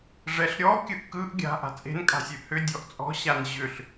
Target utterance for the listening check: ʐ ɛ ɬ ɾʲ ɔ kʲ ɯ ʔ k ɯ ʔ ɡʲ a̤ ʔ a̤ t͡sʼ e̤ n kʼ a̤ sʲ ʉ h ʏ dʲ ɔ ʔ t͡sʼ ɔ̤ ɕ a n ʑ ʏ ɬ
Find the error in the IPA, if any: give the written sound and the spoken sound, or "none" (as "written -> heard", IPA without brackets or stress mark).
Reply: none